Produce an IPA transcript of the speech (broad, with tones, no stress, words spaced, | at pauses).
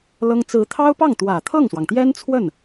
lɤ˥ŋ t͡sɹ̩˧˥t̪ʰɑ˥ʊ̯pɑ˥˩ŋt̪wä˨˩ t̪ʰɤ˥˩ŋswɑ˩ŋt̪jɛ˥nt͡sʰwə˥˩n